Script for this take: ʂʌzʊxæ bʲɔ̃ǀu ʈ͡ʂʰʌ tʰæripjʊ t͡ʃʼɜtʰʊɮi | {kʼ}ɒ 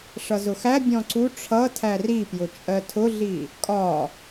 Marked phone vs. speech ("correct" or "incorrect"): correct